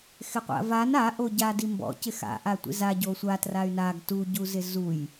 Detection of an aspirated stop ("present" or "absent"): absent